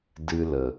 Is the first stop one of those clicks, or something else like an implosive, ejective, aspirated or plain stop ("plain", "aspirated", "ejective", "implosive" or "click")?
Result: plain